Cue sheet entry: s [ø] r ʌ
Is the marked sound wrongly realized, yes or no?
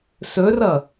yes